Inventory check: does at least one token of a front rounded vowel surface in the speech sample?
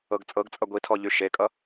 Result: yes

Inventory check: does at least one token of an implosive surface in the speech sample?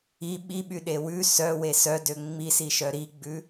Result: yes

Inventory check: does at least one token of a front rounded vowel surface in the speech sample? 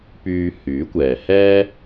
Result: yes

